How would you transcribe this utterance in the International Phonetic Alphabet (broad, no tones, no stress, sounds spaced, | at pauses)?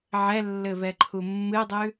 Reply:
ʕ ɛ lː ɘ v ɛ ǃʰ u mː ɨ dˤ ʉ